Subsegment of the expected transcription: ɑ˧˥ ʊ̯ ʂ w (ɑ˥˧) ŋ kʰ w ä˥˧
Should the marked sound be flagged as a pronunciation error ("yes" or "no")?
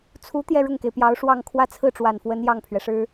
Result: no